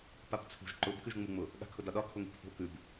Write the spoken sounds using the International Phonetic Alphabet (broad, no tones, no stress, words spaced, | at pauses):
papt͡sʰṳʒ ǃʊb kʉʒŋ͡muŋ͡mʊ | ɠa̤kʰʊdɒɗɒ kʰʊŋi̤pθṳo̯kʉb